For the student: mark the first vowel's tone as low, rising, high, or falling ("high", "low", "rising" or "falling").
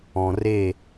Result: low